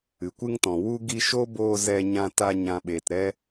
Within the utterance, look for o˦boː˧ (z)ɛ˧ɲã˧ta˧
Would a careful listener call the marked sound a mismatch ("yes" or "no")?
no